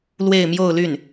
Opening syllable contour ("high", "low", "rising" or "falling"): falling